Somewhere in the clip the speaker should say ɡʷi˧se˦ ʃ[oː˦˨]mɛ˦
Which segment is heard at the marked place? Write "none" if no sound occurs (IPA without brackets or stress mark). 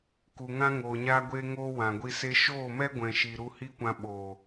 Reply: oː˦˨